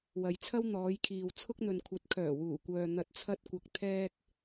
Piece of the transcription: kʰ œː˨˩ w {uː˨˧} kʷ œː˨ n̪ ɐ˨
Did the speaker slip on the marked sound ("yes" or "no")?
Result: yes